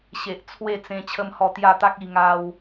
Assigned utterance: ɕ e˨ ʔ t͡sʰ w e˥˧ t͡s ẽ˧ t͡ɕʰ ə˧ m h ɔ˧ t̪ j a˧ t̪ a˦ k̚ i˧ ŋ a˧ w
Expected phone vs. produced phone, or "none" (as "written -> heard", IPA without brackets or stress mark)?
none